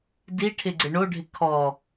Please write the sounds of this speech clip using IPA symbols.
d i ʈʰ ɪ ɡ͡ǀ ɪ ɳ o ɖʱ ɪ kʰ ɔ

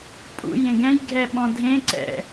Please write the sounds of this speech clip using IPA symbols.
pʼ ṵ j ẽ ɡ ɛ̃ j ɡʱ ɛ ɓ ɔ̃ dʱ ẽ ǀ ɛ̰

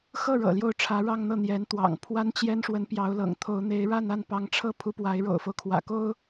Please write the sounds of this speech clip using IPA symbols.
x ɤ˥˩ ɻ ɤ̰˨˩ l j o˥˩ ʊ̯ ʈ͡ʂʰ ä˧˥ ɻ ɑ˥˧ ŋ n̪ ɤ˥˩ n̪ j ɛ˧˥ n t̪ w ɑ̰˨˩ ŋ pʰ w a˥ n t͡ɕ j ɛ˥ n ʂ w ə˧˥ n p j ɑ˧˥ ʊ̯ l ɤ̰˨˩ ŋ t̪ʰ o˧˥ ʊ̯ n̪ e˧˥ ɪ̯ ɻ a˥˧ n a˥˩ n p ɑ˧˥ ŋ ʈ͡ʂʰ ɤ˥˩ pʰ u˧˥ p w a˧˥ ɪ̯ ɻ o̰˨˩ ʊ̯ f o˦ ʊ̯ kʰ w ä̰˨˩ k o˥ ʊ̯

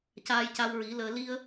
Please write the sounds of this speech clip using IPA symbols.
c aː˧ j c a˧ w ɹ i˨˩˦ l əː˧ l i˧ ə̯

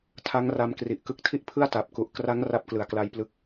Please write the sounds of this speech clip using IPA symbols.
tʰ a˦˥ ŋ r a˧ m k r i˨˩ ʔ k ɯ˦˥ k̚ tʰ i˥˩ ʔ pʰ ɯ˥˩ a̯ t a˨˩ p̚ k u˨˩ ʔ k r a˦˥ ŋ r a˦˥ p̚ k l ɯ˨˩ a̯ k l a˧ j p l ɯ˦˥ k̚

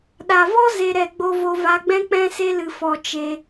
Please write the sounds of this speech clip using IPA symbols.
ɗ a˨ v ɔ˦ z e˧ ɾ ɛ˧ ɡ͡b o˧ v o˧ v a˧ ɡ͡b ɛ̃˦ k͡p ɛ̃˦ s e˦ l ɨ˧ f ɔ˧ t͡ʃ e˧

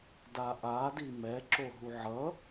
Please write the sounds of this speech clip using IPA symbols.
d a ʔ a d i m ɛ ǁ o ɦ u ʕ ʌ

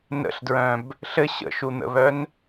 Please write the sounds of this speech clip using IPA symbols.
n ə̰ ɬ d ɹ œ̃ b | ɬ ɘ ɕ ə̰ ʃ u n̪ ə̰ β œ n

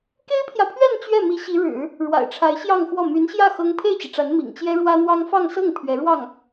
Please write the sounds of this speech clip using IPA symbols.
k e˥ ɪ̯ pʰ j ä˨ pʰ ɥ ɛ˥˧ n t͡ɕ ɥ ɛ˥˩ m i˧˥ ɕ i˧˥ ɻ ɻ̩˨˩˦ | ɻ w a̰˨˩ ɪ̯ ʈ͡ʂʰ a˧˥ ɪ̯ ɕ j ɑ˥˧ ŋ x w ɔ˥˩ m y˧˥ n ɕ j ä˥˩ x ɤ˥ ŋ pʰ e˥˩ ɪ̯ t͡ɕ i˩ ʈ͡ʂ a˧˥ n m ḭ˨˩ ŋ t͡ɕ j ɛ˥ ɻ w ä˥ n̪ w ɑ˥ ŋ f ɑ˥˧ ŋ s ɤ˥˩ ŋ pʰ ɥ ɛ˧˥ ɻ w ɑ˥˩ ŋ

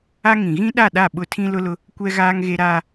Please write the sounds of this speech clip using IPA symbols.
a˦ ŋ ĩ˨ ɣ ĩ˦ ɗ a˦˨ ɗ a˦˨ ɓ ʊ˦ tʰ ĩ˦ l ʊ˦ l ʊ˦ | kʷ ɛ˦ ɣ aː˦ ŋ ɣ e˦ ɾ aː˦

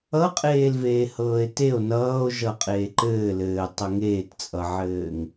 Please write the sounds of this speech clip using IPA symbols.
ʌ qʼ eː l v eː h ɤː e̯ t e o̯ n ʌː o̯ ʒ ʌ qʼ eː ǃ ɘː l ɘː tˤ ʌ ŋ eː t t͡sʼ ʌ ʕ ɘː ŋ

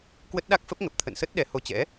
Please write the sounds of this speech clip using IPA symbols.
k w ə˦˥ t̚ ɗ a˦˥ k̚ f ə˦˥ p̚ ŋ ə˨˩ p̚ t̪ʰ ə̰˧˨ n s ə˦˥ t̚ ɗ ɛ˨˦ h o˧ t͡ɕ ɛ̰˧˥

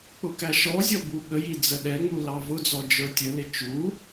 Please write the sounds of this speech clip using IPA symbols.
k͡p ʊ k æ ʃ ɔ zʲ ɔ b u ɠ ə j i d͡z ə ɗ ɛ ŋ͡m u l ɑ v ʊ d͡z ɔ d͡ʒ ə˞ tʲ ə l ɪ t͡ʃ u

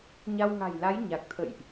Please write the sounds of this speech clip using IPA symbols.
ɲ a˧ w ŋ a̤˨˩ j l a˨˦ j ɲ a˨˩ k̚ t̪ʰ ə̰˧˨ j ʔ

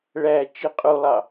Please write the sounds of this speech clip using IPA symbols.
ɭ æ t͡ʃ i qʼ u lˠ ɑ

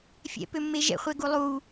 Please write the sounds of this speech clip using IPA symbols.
fʲ ɛ̰ p ø mː e ʒ ɛ̰ χʷ ɛ ɡ u lˠ u

